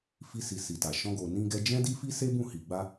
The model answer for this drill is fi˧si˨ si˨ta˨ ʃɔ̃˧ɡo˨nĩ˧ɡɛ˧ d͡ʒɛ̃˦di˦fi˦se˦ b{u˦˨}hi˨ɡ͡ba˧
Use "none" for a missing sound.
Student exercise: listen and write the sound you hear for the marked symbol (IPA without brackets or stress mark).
ũ˦˨